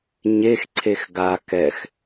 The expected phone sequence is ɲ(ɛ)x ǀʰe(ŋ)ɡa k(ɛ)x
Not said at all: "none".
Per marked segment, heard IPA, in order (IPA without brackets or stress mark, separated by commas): e, x, ɛ